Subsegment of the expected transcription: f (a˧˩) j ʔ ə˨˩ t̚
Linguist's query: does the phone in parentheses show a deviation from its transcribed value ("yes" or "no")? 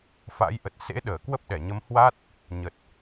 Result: yes